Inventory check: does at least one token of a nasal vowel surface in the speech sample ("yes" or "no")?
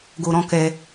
yes